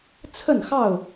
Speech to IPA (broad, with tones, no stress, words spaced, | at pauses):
t͡sʰə˥˨nxɑ˥˨ʊ̯